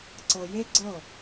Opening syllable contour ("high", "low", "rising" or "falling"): low